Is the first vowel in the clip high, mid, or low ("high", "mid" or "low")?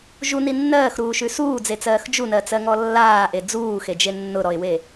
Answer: high